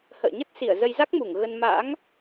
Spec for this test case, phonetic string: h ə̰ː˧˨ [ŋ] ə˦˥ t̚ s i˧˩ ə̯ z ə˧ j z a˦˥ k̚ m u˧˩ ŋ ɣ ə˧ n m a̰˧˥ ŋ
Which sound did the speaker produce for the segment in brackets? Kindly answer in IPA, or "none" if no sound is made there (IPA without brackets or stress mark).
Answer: ɲ